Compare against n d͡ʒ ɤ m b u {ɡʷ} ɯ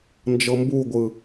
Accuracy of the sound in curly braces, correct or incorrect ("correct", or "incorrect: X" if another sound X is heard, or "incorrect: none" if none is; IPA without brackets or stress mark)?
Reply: correct